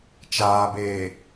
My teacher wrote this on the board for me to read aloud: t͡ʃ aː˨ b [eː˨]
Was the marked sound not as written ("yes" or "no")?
no